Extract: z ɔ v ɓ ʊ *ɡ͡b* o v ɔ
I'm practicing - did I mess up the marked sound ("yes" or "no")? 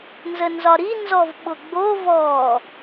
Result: no